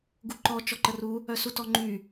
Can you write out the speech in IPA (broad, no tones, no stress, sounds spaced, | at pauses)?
ɡ u ǃ ɔ t͡ʃ ɔ ǃ ə r u | œ s u t ɔ ŋ͡ǃ y